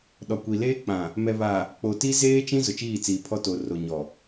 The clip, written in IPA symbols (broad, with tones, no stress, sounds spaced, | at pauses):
ɗ ɔ˨ kʷ i˨ l eː˦ k͡p ã˨ | m ɛ˨ β a˨ | k͡p o˨ t i˦ z eː˦ t͡ʃ ĩ˦ z ʊ˨ t͡ʃ iː˦˨ t͡s iː˨ pʰ ɔ˦ t o˨ r o˨ ɲ ɔ˨